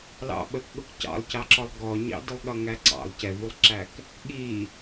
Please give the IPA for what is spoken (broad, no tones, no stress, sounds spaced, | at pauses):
l ɑ̰ ɓ ə k ɠ ʊ k c ɑ̰ lˠ c ɑ ǁ ɔ lˠ ɡ ɔ ɲ ɑ̰ d ɪ lˠ ɠ ʌ ŋ æ ǀ ɑ̰ lˠ c ɛ v u lˠ ǁ æ k | ɠ i